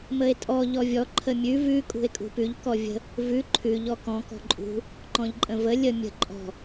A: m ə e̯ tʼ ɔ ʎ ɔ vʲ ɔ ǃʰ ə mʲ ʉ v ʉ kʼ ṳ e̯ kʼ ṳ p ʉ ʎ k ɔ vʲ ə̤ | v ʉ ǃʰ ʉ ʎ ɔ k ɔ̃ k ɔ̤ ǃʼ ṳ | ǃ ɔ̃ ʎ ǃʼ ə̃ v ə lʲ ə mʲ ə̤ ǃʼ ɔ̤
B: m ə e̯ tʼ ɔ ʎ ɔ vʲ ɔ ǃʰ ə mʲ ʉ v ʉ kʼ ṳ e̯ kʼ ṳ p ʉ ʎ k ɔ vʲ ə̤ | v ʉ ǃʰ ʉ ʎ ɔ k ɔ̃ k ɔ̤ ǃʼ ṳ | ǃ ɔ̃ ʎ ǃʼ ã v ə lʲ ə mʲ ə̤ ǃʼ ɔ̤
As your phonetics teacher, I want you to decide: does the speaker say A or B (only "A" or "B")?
A